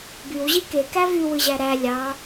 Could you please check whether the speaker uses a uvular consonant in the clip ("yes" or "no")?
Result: no